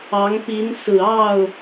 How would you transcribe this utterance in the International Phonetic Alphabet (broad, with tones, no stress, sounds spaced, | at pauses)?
ɑ˧˥ ŋ p i˧˥ n s ɹ̩˨˩ ɑ˥˩ ʊ̯